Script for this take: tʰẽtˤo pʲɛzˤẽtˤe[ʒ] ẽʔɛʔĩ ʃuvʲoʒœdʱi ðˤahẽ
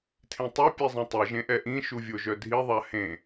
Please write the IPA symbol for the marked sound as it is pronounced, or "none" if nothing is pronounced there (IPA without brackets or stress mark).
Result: ʒ